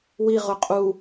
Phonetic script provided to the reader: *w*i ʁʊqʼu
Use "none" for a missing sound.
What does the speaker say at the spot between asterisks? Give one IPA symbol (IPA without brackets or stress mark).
w